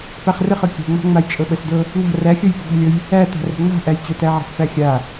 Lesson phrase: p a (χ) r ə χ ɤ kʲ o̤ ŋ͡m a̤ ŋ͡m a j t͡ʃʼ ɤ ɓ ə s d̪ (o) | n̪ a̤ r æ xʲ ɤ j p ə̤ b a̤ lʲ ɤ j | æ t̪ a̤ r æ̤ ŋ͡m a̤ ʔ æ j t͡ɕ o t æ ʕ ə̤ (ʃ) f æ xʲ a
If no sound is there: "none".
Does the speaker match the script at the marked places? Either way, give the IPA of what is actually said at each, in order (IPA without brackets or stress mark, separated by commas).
χ, ɤ, s